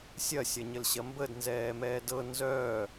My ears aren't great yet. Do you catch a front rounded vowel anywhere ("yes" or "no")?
yes